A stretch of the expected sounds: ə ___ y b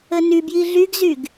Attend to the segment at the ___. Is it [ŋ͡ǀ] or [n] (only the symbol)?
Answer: n